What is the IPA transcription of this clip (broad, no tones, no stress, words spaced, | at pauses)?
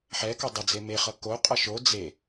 ħɛkʌ dˤəd͡ze meχʌ koqʼʌ ʃo d͡ze